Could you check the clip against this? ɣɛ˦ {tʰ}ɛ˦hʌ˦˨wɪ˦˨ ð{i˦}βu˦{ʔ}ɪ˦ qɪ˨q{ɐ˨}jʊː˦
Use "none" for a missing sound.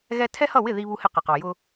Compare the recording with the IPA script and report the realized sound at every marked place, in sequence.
tʰ, i˦, h, ɑ˨

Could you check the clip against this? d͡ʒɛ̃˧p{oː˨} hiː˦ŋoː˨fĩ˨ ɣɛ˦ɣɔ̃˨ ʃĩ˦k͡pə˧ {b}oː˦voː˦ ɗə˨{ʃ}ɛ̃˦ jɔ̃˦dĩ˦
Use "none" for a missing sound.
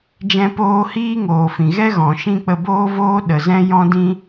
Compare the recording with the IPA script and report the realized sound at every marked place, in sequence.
oː˧, b, z

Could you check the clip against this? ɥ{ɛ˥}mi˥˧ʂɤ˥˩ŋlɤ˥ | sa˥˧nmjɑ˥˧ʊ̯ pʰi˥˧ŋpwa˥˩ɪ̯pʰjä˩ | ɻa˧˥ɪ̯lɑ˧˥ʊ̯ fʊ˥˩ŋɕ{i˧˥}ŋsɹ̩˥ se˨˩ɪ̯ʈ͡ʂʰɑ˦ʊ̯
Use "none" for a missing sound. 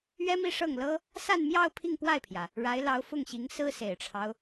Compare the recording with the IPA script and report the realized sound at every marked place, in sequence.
ɛ˥, i˧˥

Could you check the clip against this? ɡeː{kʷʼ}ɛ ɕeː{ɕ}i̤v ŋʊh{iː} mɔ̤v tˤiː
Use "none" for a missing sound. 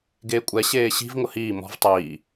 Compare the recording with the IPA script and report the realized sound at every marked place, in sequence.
kʷʼ, ɕ, iː

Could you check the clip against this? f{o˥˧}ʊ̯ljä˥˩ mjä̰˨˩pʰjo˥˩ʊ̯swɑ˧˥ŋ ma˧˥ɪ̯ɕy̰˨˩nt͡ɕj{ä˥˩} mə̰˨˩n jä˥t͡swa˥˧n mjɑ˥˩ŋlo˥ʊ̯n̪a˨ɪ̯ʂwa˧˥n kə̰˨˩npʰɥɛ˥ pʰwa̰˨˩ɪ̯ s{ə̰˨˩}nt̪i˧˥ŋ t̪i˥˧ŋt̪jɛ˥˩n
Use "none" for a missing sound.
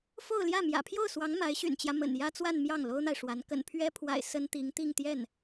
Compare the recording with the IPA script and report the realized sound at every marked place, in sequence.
o˥˧, ä˦, ə˥

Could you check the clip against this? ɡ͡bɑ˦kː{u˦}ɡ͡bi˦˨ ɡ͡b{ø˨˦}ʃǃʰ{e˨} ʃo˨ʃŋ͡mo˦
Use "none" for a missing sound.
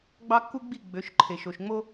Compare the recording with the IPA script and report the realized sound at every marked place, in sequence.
u˦, ø˨˦, e˨

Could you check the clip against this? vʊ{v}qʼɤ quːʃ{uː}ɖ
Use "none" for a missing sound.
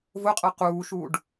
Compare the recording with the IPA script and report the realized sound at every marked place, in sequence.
none, uː

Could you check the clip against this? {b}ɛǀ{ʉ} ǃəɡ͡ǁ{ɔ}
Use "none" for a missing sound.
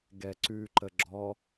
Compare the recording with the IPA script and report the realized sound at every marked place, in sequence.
ɡ, ʉ, ɔ

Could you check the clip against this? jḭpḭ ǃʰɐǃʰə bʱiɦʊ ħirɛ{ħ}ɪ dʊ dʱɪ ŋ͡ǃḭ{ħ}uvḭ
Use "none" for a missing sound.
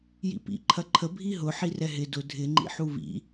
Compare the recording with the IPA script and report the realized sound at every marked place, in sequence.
ɦ, ħ

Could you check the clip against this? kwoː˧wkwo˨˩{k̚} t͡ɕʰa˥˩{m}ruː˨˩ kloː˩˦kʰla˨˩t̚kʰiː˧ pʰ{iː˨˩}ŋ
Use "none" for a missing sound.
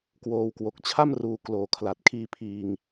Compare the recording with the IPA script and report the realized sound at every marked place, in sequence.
k̚, m, iː˨˩

